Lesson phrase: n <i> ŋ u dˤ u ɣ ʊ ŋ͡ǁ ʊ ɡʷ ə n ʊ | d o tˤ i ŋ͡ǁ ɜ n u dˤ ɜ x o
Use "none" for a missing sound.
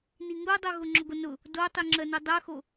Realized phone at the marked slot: i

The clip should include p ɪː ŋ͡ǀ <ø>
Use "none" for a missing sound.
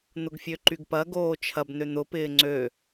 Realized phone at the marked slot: ø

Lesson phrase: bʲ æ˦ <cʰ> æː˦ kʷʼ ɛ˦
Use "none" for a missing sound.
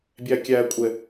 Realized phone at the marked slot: kʲ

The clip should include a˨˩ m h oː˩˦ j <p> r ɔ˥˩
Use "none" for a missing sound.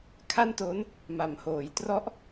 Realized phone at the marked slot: t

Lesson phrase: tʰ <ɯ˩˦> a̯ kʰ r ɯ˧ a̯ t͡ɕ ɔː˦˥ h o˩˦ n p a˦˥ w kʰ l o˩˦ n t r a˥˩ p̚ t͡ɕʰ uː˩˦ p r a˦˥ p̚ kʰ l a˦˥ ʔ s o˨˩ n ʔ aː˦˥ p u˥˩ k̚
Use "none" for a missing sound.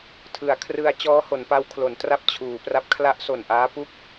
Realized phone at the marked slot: ɯ˩˦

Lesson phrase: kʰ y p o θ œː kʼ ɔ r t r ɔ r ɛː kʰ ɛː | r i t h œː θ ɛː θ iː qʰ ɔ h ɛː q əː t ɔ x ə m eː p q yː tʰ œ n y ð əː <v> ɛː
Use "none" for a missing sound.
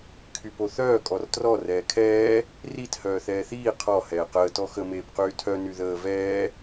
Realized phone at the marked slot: v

